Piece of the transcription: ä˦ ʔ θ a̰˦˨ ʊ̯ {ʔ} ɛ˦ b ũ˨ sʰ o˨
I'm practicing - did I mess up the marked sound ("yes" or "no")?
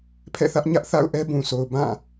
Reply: no